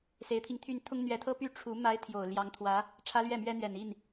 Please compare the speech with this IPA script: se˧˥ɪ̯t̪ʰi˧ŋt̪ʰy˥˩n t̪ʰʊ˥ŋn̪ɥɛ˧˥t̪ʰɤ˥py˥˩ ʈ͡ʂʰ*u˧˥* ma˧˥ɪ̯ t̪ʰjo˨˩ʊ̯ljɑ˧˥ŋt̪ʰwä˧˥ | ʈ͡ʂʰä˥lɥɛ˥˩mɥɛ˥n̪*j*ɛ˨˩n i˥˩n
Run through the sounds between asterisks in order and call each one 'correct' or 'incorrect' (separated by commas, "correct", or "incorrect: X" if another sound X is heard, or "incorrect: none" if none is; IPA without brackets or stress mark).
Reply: correct, incorrect: ɥ